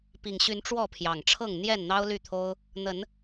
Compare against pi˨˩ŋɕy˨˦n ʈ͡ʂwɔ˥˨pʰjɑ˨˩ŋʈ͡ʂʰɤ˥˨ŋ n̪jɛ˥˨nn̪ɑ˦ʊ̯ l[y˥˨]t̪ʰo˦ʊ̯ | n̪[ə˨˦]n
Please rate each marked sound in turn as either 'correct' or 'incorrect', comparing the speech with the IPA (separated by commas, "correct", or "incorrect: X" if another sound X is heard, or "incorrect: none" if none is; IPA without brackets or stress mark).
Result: correct, correct